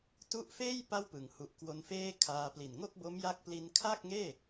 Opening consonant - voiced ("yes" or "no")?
no